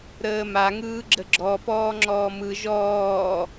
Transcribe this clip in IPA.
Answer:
ɾ əː m a ŋ ɯː ɡ͡ǁ ə ɡ͡ǁ ɔ p ɔː ŋ͡ǁ ɔː m ɯ ʒ ɔː

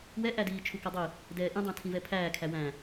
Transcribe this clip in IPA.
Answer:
w ɛ ʔ æ d iː t͡ʃʰ u k ʌ dˤ i | d ɛː ʔ ĩ dˤ æ̃ tʰ ĩ v ɛ pʰ æː kʰ æ w æ̃

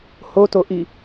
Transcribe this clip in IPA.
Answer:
h o t o ʔ i

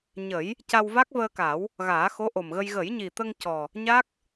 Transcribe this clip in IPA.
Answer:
ɲ ə˨˩˦ j | c a˧ w v a˦˥ k̚ v əː˧ k a˨˩˦ w | ɣ aː˨˩˦ x o˧˥ ʔ o˨˩ m ɣ ə˧ j ɣ ə˨˩˦ j ɲ i˨˩ t̪ ə˧ ŋ c ɔ˨˩ | ɲ a˦˥ k̚

